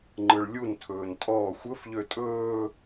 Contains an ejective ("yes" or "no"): yes